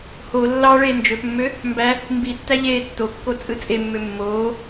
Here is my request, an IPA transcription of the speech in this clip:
ho lːɑ ɭeːnd͡ʒøpmːø | mbæ | mbitːæ ʎeːtːokːo t͡sʼɯt͡sʼemːø mːoː

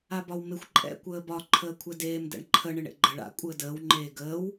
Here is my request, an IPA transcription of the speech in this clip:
abɒwmɪxʷ ǃʼɛ̰ kʷəːbɒ ǃʰəːkʷʰɛdeːm dɛ̰ɳǃʰə ɳɪɳḛɡ͡ǃəɭ a̰ kʷʼəːdəːw ŋ͡ǃeːɡəːw

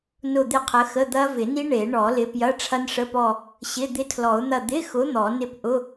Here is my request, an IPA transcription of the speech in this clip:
nʊ˦˨d̪ɪ˦˨qʰə˨˦xə˧˥˧ d̪ɐ˦˥vɪ˨˩˦ni˦˥ ɳe˨˩˦ɳɔ˨˩˦lɪ˨˦ pjɐ˧˥˧ʈ͡ʂʰɐ˦˥nʂə˧˥˧pɔ˦˨ | ɕɪ˧˥˧ d̪ɪ˦˥tʰlɔ˨˩˦ʊ̯n̪ɐ˦˨ d̪ɪ˧˥˧xʊ˨˦ n̪ɔ˨˩˦ nɪ˦˨pʔʊ˧˥˧

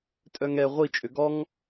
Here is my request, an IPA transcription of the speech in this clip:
tʼœŋɛ ʁʷi t͡ʃʼøɡɔŋ

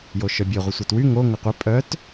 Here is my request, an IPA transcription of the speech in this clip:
joʃœbʲe ʁʷəsʷetwy ŋo ŋʊqʷœ pʼœt

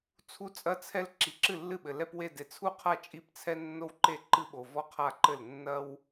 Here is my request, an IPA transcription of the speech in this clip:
t͡sʰu˥t͡sʼɐ˥t͡sʰɛ˥l ǁi˨ǁɨ˥˩lːɨ˥˩ɓɘ˨ lɛ˥pwe˥˧ de˨t͡sʰu˥˩qʰa˥˩ t͡ʃʼi˥˧pt͡sʰɛ˥ nːo˥wǃe˥˩ ǃɨ˥ɓo˨vɔ˥qʰa˥˧ ǃɘ˥˩l nːɐ˥w

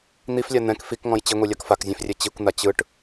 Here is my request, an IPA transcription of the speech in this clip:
n̪iflʲa n̪ɛ̃k fikŋɔ̃j t͡ɕiŋʷilʲak fakzʲɛ̃frʲɛ t͡ɕikʷn̪a t͡ɕɯʈ

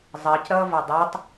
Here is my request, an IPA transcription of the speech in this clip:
zˤɜc ɾʌːvʌdˤɜtˤ

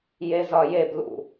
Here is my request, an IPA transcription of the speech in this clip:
jezɒjeb lṵ

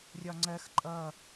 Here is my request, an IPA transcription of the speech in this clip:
rʲɒŋ͡ǀɜx ǃʼʌ

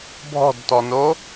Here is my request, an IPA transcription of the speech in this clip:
bʱɔ̤dtɔno

